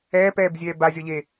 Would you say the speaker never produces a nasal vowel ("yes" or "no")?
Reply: yes